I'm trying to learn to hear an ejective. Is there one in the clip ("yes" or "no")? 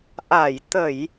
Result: no